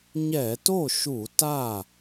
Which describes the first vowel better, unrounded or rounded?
unrounded